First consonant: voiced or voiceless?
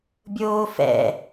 voiced